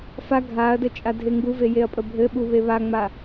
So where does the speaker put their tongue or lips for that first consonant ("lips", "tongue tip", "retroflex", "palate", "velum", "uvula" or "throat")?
lips